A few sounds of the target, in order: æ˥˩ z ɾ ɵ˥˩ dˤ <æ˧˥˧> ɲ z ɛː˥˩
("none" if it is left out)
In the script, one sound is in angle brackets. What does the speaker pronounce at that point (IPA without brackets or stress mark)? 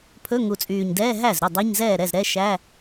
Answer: æ˧˥˧